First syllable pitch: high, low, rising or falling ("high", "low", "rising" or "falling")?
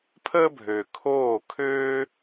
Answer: high